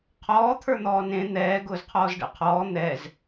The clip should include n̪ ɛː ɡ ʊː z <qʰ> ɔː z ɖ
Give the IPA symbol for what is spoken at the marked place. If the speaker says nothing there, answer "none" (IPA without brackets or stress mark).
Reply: qʰ